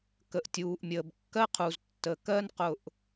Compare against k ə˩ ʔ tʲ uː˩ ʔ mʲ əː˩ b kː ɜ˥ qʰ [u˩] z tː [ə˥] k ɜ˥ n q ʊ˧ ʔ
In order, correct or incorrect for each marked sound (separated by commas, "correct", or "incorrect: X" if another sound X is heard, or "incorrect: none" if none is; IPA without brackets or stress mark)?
correct, incorrect: ə˩